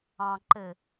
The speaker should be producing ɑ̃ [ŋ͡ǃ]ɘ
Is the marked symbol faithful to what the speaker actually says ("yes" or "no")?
no